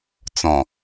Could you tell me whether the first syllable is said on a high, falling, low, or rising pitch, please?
low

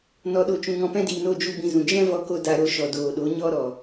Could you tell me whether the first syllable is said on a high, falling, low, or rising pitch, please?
low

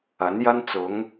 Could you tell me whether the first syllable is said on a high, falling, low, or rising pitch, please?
rising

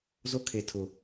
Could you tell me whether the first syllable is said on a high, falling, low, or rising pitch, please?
high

